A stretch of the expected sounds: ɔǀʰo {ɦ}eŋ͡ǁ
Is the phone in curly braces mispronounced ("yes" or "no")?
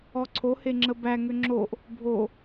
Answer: yes